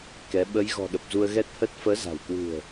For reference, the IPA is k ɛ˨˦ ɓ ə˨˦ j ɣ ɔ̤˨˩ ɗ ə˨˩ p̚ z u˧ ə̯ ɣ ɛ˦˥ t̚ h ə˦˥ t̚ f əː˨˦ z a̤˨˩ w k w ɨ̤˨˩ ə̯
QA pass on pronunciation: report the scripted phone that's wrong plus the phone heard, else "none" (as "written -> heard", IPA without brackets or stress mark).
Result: none